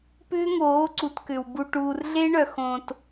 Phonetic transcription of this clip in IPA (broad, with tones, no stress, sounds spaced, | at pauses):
p ʏː˦ ŋ oː˨˦ ǀ u˨ t k ʏ˨ w b u˨ ʈ uː˨ r ɮ e˦ ɳ œ˨ x õː˨ t